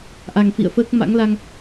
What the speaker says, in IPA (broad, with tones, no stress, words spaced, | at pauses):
ʔa˨˩ŋfḭ˧˨ə̯fəː˦˥k̚ ma̰˧˥ŋla˧ŋ